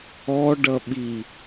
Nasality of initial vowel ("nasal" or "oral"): oral